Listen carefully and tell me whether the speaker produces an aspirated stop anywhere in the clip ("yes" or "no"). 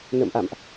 no